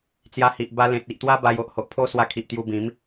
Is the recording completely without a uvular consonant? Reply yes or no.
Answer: yes